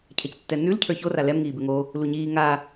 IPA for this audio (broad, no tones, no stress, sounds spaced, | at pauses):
cʰ ɛ c tː ɛ n ʉ l cʰ ə˞ ç o r a l ɛ m ŋ iː b ʉ ŋ o | l u ɲ iː ŋ a